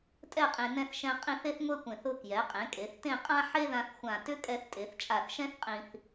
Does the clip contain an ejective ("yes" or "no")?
yes